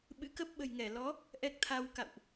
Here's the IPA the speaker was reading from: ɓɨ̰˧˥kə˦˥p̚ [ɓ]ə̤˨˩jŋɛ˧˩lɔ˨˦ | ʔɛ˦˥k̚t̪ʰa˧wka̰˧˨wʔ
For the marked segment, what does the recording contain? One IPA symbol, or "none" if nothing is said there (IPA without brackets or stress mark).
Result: ɓ